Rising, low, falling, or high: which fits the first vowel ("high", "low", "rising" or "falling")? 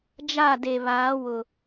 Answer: falling